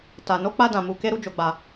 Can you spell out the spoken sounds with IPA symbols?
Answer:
t a˨ n o˨˦ k͡p a˧ d ã˨ m u˨ k e˧ ɾ u˦ d͡ʒ o˧ ɡ͡b a˧

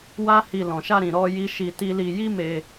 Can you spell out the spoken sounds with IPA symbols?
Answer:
w a˦ h i˧ l ɔ̃˨ ʃ a˧ ɾ ĩ˨ ɾ ɔ˧ j i˦ ʃ i˧ t i˦ l i˧ j i˦ m e˧

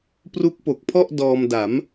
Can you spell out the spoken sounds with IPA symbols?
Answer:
p r u˦˥ k̚ p o˨˩ k̚ pʰ ɔ˥˩ ʔ d ɔː˧ m d a˩˦ m

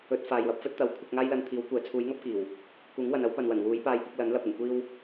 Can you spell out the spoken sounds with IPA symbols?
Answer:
ɵ˨˥ t̚ f aː˨ j w ɐ˧ p̚ f ɵ˥ t̚ t̪ ɐ˨˥ w kʷʰ ɪ˧ k̚ ŋ aː˥ j l ɐ˧ n t̪ʰ iː˨˥ w kʷ ɛː˨˥ t͡sʰ uː˨˥ j ŋ ɐ˥ p̚ k iː˨˩ w | k uː˨˥ ŋ w ɐ˨ n ɐ˨˥ w p ɐ˨ n w ɐ˨˩ n w uː˨˥ j p aː˧ j p ɪ˧ k̚ l ɐ˨˥ n l ɐ˧ p̚ ɪ˨˩ ŋ kʷ iː˧ w

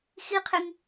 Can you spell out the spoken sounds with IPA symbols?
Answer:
x i qʰ e ŋ

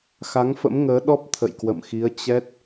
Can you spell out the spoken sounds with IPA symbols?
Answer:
x a˨˦ ŋ f ə̰˧˥ m ŋ əː˨˦ ɗ ɔ˦˥ p̚ t̪ʰ ə̰˧˨ j k w ə̰˧˨ m x i˨˦ ə̯ t͡ɕ ɛ˦˥ t̚

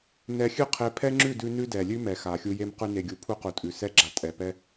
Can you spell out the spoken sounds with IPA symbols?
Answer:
n ɛ˧ xʲ ʉ˦ qʰ e˧ pʰ ɛ˦ ŋ͡ǁ ʉ˦˨ d ʉ˧ n ʉ˦ d ɛ˨ lʲ ʉ˦ m ɛ˨ x a˨ xʲ u˧ j e˧ m q ʉ˧ n e˨ ɡʲ u˨ pʰ u˧ q u˨ tʼ ʉ˨ s ɛ˦ ɡ͡ǁ a˧ tʼ ɛ˨ p ɛ˧

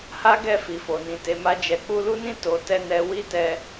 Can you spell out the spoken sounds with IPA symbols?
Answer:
h a˦ ɡ ɛ˦˨ f i˨ f o˨ n ĩ˨ t e˨˦ m a˦ d͡ʒ ɛ˧ k͡p u˦ l u˦ n ĩ˦ t o˧ t ɛ˦ n ɛ˧ w i˦ t ɛ˧

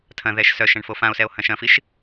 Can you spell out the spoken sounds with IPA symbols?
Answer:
tʰ ɐ̃ ð ɛ ʃ s œ ʃ ɐ̃ ɳ f o f ã o̯ s ɛ o̯ h ɐ̃ ʃ ɐ̃ f i ʃ

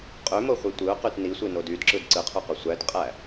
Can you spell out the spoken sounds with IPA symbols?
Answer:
qʼ ø m o χʷ i tʷ ɯ ʊ̯ q y t n i sʷ i n o d y d ǁ ɯ d ǀ ɯ qʰ ø q o sʷ æ t qʼ æ

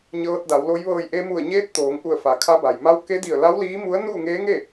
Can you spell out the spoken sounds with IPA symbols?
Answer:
ɲ ɤː˧ t̚ d a˩˧ w l o˧˥ j ʋ ɤː˧˩ j ʔ e˧ m u˧˩ ə̯ ɲ eː˧˥ t̚ t̪ oː˩˧ ŋ ʔ u˧˩ ə̯ f a˩ kʰ a˧˥ b a˩ j m a˧˥ w k e˧˥ d i˧˩ ə̯ l a˧˥ w l iː˧˥ m u˧˥ ə̯ n uː˥˨ ŋ eː˧˥ ŋ e˥˨

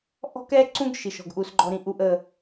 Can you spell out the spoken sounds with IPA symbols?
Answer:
ʔ ɔ̤˦ k ɛ˦ ǀ ũ˦ ɡ ʃ i˦ ʃ ɔ̤˦ ɡ ʔ u˦ s ɡ͡ǃ ɔ˦ ɾ ĩ˦ ʔ u˦ ʔ ə˦

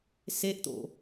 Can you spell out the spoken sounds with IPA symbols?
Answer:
s e ʔ t̪ o̰

